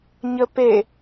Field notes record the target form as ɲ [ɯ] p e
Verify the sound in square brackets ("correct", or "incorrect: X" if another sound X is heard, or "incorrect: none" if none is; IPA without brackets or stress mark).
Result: incorrect: ə